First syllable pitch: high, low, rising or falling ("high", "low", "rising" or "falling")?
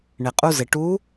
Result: low